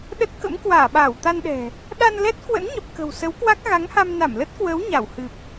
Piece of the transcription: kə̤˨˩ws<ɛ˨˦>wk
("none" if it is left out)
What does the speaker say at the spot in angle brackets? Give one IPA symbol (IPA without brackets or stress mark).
ə˨˦